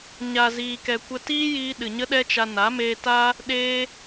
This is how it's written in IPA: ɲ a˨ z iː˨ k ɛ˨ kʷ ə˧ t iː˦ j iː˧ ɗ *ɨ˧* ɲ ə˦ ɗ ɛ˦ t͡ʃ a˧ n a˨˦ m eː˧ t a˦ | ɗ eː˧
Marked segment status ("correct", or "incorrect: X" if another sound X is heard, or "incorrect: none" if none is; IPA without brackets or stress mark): incorrect: ɨ˨